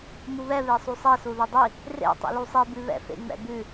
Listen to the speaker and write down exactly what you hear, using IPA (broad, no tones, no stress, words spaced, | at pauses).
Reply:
muβɛβesˤu sˤɛsu ðʉdˤi | rḛ tˤḭlusˤibʉ βɛ̰fḛŋ͡mɛ̰bʉ